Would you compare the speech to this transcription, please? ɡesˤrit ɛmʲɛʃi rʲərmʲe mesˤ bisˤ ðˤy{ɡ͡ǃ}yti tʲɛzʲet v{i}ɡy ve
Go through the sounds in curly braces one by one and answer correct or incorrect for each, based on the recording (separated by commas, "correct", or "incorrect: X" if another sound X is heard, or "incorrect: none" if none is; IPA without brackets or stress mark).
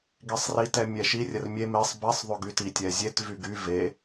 incorrect: ɡ, incorrect: y